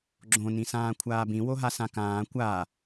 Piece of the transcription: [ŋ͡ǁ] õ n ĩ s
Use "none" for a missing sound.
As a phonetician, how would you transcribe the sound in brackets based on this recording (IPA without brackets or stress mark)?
ɡ͡ǁ